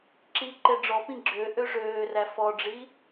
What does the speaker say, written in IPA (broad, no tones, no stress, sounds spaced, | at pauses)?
ǁ i ǃ e ɖ͡ʐ ɔ p ĩ ɡ͡ǁ ø ʔ ø ʐ øː r æ f ɔ ɖ͡ʐ i